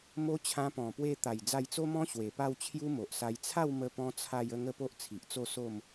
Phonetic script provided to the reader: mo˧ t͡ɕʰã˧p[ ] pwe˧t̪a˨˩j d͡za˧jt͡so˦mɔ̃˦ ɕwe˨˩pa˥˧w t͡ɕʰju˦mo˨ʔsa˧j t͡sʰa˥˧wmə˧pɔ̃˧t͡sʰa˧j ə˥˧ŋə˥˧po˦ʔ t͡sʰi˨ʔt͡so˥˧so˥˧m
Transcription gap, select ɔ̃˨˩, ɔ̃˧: ɔ̃˨˩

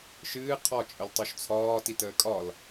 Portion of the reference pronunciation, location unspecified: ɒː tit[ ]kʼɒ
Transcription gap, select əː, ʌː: əː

